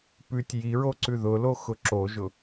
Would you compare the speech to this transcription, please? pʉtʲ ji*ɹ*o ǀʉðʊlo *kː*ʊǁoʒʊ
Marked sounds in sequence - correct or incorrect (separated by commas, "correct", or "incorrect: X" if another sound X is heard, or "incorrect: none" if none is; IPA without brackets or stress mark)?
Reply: correct, incorrect: x